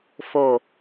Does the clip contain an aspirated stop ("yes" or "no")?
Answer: no